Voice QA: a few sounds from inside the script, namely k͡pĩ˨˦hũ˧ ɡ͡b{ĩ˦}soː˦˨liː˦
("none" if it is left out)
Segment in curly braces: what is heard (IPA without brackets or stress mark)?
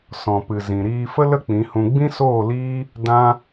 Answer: ĩ˦